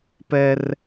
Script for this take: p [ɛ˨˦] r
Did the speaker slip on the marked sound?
yes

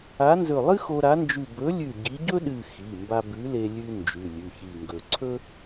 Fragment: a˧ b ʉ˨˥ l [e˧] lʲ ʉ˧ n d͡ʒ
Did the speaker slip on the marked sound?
no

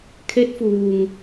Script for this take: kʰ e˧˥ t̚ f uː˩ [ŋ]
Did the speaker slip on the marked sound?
no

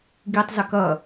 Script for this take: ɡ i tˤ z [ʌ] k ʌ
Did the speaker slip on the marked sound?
yes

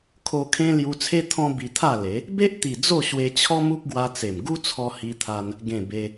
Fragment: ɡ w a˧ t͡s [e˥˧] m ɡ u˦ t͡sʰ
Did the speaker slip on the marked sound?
yes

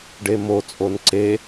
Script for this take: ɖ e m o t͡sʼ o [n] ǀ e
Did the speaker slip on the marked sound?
no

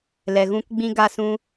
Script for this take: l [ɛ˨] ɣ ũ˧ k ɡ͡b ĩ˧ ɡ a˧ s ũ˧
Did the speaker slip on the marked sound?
no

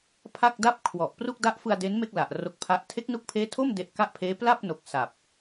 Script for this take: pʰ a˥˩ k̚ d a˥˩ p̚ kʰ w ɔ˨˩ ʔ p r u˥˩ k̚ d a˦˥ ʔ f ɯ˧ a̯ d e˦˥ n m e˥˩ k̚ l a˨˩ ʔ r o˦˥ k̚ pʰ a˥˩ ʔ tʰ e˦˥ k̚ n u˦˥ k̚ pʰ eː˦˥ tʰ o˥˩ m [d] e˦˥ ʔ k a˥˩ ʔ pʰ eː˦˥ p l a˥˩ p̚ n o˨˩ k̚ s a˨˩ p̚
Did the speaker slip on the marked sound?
no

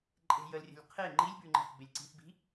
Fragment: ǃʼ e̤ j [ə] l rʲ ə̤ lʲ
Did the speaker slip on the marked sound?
no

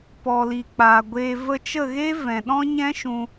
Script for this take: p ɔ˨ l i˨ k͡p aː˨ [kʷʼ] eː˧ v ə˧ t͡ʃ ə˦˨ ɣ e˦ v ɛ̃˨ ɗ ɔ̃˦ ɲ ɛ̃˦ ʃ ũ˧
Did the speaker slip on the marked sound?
yes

